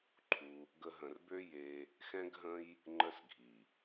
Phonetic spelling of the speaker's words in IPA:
ǃʰ u˧ | ɡ ə˧ ɦ ə̃˨ r b ø˦ j e˧ | x ɛ̃˦ ɡ ɦ ə̃˦ j | ŋ͡ǃ ə˧ s ɡʱ i˨

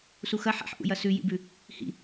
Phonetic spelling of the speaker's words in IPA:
s u x ɐ ħ a̰ ħ ʔ ṵ j ɐ s ʉ j ḭ b ʉ | h ḭ

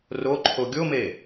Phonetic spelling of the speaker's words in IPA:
r o ǃʰ o ɡʲ o m e

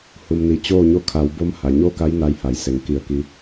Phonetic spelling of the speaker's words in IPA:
h u˩ m n i˩ t͡ɕ oː˥˨ ɲ o˥˨ kʰ a˩˧ w b o˧˥ m h a˩ ɲ o˥˨ k a˧˥ j n a˧˥ j h a˩˧ j s e˩˧ ŋ k i˧˩ ə̯ k i˧

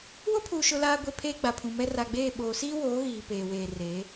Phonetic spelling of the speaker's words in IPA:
w ʊ˦ pʰ uː˨ ʃ ʊ˦ l aː˦ ɡʷ e˦ pʰ eː˦ ɡ͡b a˨ pʰ ũ˨ m ɛ˦ r a˨ ɡ͡b eː˦˨ ɓ oː˨ s iː˦ w oː˨˦ ɣ iː˨ p eː˨ w eː˨ r e˨˦

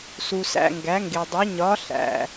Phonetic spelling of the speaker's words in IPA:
s u˨ s æ̰˨ ŋ ɡ æ˨˦ ŋ ɡ e˨ dˤ u˨˦ ɲ ɒ˨˦ ɬ æ̰˨

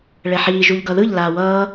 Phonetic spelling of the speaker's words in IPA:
ɭ ɛ ħ iː ʒ u ʎ ɡ ʌ ð ɯ ʎ l aː w ʌː

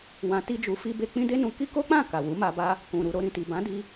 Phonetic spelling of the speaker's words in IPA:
w ã˧ t i˦ d͡ʒ u˧ f i˦ b e˦ k͡p ĩ˦ d e˦ n ũ˧ k i˦ k o˦ k͡p ã˦˨ k a˨ w u˨˦ m a˧ b a˦ | k ũ˨ ɾ u˨ ɾ o˧ ɾ ĩ˨ t i˨ b ã˨˦ d i˧

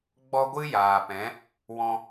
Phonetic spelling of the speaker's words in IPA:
ɡ͡b ɔ˦ ɡʷ ɨ˦ j aː˨ p ɛ̃˨˦ | w ɔ̃˧

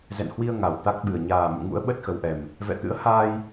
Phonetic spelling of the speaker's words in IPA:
z ɛ̰˧˨ n h w i˧ ə̯ ŋ a˨˩ w t̪ a˦˥ k̚ ɓ ɨ˨˩ ə̯ ɲ aː˨˩ m ṵ˧˨ ŋ ṵ˧˥ ə̯ ɓ ə˦˥ t̚ x ə˨˦ w ʔ ɛ˨˩ m | v ɛ̰˧˨ t̪ ɨ̰˧˥ ə̯ h aː˧ j

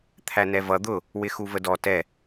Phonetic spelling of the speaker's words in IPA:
t̪ʰ æ n ɛ v ʌ d̪ ʊ | w ɪ x u v ə d ɔ t ɛ

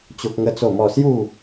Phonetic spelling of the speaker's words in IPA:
t͡ɕ o˦ k̚ ŋ ə˦ t͡s o˥˧ m ɔ˥˧ s j u˥˧

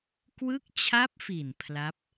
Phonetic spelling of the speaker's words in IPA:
k w ɯ˦˥ k̚ t͡ɕʰ a˦˥ p̚ f i˨˩ n pʰ l a˦˥ p̚

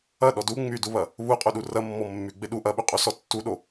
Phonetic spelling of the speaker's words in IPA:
ɐ ɗ ɔ d u ŋ͡m y d u β ɐ | β u qʼ u ɗ u r ɐ mː ɔ mː y ɡ͡b e ɗ u ʔ ɐ ɓ y qʼ u s ɔ tː u ɗ o

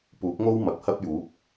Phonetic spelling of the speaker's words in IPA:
p uː˨˥ k̚ ŋ o˥ w m ɐ˨˥ p̚ h ɐ˥ p̚ j uː˨˥ p̚

